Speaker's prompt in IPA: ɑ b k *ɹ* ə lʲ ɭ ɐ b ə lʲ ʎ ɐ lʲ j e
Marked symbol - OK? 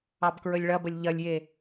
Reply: yes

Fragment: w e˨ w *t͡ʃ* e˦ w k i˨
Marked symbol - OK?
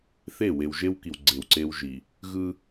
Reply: no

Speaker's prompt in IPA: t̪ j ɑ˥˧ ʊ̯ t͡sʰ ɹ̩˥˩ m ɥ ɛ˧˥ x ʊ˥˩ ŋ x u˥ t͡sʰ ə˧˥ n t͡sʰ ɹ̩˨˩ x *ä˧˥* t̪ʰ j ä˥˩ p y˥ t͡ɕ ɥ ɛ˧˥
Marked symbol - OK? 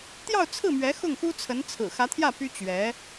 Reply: yes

